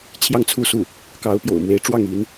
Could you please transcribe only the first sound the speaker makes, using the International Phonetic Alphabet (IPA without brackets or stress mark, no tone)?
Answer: t͡ɕʰ